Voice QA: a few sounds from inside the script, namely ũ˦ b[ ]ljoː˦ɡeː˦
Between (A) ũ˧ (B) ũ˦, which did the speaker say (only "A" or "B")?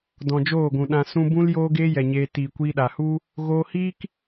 B